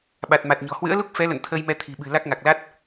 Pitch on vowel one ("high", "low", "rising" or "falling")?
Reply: low